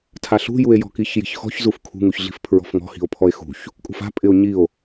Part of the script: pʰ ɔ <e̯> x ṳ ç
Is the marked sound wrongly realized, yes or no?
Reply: no